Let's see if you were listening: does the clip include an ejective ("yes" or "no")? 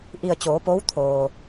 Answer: no